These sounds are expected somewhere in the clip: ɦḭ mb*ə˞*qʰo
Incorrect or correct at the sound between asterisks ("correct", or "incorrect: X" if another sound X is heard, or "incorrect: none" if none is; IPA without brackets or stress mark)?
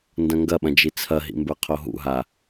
correct